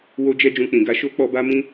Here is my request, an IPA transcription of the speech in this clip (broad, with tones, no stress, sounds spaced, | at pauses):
w o˦ d͡ʒ ɛ˦ d͡ʒ ũ˦ k͡p ĩ˧ ɡ a˦ ʃ o˦ k͡p ɔ˦ b a˦ m ĩ˦